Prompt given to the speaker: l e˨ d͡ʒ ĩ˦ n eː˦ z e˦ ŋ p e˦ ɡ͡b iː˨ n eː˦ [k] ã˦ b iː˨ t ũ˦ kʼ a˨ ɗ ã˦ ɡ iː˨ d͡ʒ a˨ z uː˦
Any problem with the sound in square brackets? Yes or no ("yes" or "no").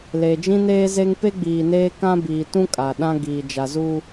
no